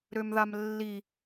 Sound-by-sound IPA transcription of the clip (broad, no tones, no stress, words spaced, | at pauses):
ɾømðamlːi